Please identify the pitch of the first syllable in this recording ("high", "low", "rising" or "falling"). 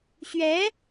rising